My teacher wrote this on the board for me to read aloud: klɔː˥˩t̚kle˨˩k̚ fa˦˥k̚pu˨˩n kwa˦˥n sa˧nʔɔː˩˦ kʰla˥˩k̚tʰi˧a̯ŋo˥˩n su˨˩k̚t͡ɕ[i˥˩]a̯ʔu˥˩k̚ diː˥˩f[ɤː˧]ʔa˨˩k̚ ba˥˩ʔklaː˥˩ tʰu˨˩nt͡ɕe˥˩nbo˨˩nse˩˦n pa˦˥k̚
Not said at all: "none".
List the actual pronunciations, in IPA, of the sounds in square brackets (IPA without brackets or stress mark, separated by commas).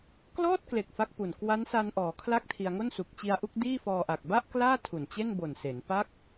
i˧, ɔː˧